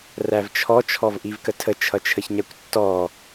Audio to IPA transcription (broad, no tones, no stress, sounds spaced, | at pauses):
r æ v t͡ʃʰ ɔ t͡ʃʰ ɔ v ʔ i v k ə tʰ ə t͡ʃʰ ʌ t͡ʃʰ ə ç ɲ æ kʷ tː ɔ